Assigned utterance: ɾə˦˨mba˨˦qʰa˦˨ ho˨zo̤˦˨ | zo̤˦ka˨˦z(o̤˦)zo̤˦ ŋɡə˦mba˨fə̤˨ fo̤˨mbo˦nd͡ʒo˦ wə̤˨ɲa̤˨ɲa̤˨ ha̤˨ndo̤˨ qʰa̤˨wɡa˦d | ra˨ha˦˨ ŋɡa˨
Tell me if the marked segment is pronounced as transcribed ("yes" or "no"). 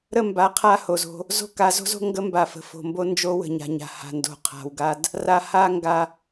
yes